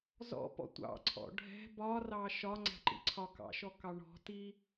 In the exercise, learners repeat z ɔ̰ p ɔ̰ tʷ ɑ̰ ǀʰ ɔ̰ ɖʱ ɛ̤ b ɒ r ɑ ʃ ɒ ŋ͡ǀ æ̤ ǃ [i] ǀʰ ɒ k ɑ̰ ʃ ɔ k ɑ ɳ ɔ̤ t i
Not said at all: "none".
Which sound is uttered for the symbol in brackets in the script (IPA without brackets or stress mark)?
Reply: ḭ